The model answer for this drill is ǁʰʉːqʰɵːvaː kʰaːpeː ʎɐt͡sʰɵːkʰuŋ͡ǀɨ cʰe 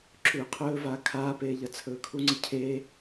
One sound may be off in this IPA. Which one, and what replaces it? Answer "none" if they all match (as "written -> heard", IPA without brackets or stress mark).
none